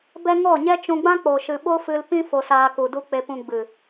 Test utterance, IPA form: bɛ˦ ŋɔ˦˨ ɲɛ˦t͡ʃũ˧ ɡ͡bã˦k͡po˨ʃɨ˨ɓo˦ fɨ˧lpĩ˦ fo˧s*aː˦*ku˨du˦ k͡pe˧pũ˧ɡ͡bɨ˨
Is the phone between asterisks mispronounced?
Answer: yes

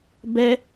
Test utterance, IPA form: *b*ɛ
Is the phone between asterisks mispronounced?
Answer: no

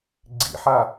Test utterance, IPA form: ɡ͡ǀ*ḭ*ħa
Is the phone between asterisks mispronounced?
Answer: no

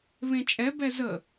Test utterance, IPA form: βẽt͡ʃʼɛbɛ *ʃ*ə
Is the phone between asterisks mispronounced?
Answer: yes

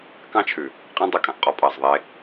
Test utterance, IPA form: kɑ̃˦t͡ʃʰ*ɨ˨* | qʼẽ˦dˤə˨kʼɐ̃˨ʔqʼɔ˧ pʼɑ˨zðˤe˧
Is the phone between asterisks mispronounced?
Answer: yes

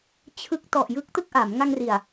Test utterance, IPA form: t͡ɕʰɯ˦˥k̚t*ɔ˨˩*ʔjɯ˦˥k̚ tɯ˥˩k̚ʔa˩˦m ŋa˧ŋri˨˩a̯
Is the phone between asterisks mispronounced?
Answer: no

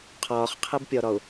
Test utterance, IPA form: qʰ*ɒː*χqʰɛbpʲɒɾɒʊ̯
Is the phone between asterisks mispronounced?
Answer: no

